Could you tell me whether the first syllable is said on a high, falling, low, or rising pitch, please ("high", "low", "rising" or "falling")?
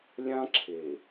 high